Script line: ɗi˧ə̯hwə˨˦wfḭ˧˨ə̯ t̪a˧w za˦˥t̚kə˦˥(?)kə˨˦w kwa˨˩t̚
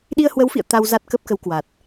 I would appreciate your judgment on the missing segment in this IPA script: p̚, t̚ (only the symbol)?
p̚